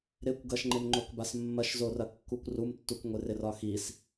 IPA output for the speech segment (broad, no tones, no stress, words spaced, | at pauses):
ɾɪkʷ ɡɐʃŋ͡ǃɪmŋ͡ǃokbas mːɐʃzorɐ kːukʷrumtːuk ŋʷɪrɪrɒxis